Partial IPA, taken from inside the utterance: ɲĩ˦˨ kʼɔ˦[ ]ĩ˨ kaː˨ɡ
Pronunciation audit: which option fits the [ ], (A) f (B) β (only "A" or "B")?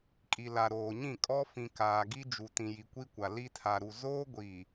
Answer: A